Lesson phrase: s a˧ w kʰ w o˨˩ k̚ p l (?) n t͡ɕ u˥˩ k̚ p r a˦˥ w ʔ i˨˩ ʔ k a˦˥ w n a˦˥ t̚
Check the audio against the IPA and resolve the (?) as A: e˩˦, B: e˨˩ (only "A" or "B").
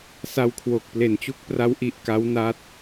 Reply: B